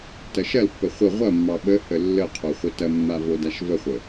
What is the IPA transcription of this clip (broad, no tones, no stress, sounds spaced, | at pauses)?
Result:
t ɐ ʃ ɐ l pː ə χʷ ə ʁʷ ɐ mː ɑ ɓ ə h ə lː ə qʰ o χʷ ə t ɐ mː a v o d a ʃ v ə χʷ ə